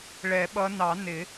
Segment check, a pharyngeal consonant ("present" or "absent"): absent